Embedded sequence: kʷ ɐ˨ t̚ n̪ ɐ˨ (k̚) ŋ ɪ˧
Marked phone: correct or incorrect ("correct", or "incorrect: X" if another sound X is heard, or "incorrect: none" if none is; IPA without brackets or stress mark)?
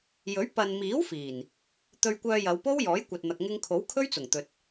correct